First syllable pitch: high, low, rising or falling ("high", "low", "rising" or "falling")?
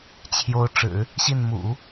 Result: rising